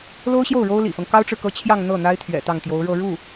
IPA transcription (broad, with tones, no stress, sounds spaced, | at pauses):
l o˥ ʊ̯ ɕ j o˥˩ ʊ̯ ɻ o˥ ʊ̯ l ḭ˨˩ f ɤ˦ ŋ k ɑ˥ ʊ̯ ʈ͡ʂ ɻ̩˨ k ɤ˥ t͡ɕʰ j ɑ˥˧ ŋ n̪ ɤ˥˩ n̪ a˥ ɪ̯ t̪ʰ ɥ ɛ̰˨˩ t̪ ɑ˥˩ ŋ t̪ j o˧˥ ʊ̯ ɻ ɤ˥˧ ɻ u˥˩